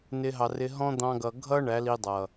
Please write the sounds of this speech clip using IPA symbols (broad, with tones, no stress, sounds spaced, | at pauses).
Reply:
n ɪ˧ ɦ ɑ˨ r ɪ˧ ɦ ɔ̃˦ d̪ ɑ̃˧ ɡ ʌ˨ ɡʱ ʌ˦ ɳ æ˨˦ l i˧ dˤ ʌ˨